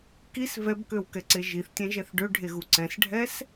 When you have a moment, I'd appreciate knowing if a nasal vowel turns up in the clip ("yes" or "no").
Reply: yes